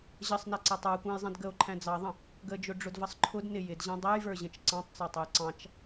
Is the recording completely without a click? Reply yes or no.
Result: no